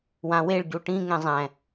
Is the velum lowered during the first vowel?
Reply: yes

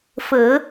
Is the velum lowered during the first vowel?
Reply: no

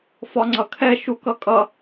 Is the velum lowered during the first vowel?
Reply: no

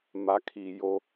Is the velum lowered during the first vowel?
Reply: no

